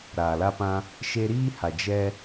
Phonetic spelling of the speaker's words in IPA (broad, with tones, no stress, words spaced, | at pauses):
ɾaː˨la˦pã˦ | ʃe˧ɾiː˦ha˨ d͡ʒɛ˦